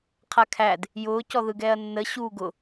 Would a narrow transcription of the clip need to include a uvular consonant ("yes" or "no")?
yes